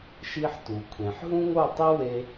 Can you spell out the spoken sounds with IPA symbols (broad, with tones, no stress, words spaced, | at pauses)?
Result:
ʃi˧ħ tu˨kʷʰẽ˨ħ ɦũ˦ŋo˦˨ tˤi˦we˧